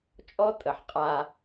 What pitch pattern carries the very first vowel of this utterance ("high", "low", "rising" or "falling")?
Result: high